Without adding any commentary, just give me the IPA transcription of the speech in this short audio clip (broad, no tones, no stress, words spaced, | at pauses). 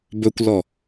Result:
bɵkʷlɔ